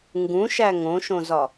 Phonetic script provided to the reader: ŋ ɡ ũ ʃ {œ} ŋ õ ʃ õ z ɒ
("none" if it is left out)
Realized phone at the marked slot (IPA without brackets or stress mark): æ